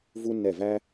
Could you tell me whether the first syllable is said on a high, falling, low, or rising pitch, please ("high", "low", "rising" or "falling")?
high